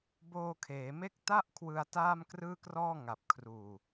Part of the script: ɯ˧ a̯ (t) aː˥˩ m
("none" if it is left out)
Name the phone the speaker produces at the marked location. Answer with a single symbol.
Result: t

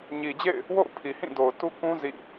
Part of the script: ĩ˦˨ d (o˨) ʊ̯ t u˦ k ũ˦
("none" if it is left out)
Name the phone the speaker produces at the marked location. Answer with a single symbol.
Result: o˨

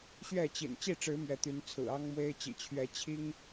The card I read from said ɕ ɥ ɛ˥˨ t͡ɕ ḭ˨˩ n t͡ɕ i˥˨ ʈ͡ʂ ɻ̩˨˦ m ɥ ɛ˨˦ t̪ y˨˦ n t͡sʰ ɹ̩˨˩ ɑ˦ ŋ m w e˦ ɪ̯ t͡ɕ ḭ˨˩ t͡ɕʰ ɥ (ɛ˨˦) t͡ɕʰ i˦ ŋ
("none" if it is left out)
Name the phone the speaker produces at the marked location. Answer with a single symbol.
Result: ɛ˨˦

